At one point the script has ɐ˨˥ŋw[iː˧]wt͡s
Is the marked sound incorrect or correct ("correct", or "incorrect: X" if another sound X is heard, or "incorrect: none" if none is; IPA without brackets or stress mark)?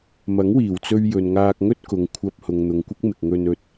incorrect: iː˨˩